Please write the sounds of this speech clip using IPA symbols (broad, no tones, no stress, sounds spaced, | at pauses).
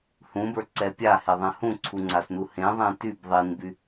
h ũ b ə˞ ǀ ɛ pʲ a h e ðˤ ɛ̃ h ũ ǀʰ u ŋ͡ǀ a s n u h ẽ ðˤ ɛ̃ t y b ðˤ i n b y